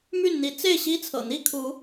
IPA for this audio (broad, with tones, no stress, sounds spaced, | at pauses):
m y˥˨ n n̪ i˨˦ t͡s e˥˨ ɪ̯ ɕ i˦ t͡sʰ ɤ̰˨˩ n̪ i˥˨ kʰ u˨˦